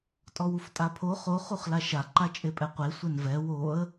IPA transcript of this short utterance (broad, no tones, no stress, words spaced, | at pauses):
tʼɔwuftʼapʰo χo χuχlaʃa ǃat͡ʃʼepʼɛqʷe sʷɛnvɛ woə̯